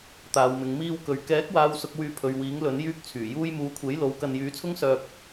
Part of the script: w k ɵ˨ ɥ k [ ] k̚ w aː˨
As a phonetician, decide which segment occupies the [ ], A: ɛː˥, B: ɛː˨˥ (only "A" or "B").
B